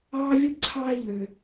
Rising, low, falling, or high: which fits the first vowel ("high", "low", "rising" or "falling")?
high